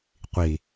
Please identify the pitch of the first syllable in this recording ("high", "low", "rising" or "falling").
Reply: low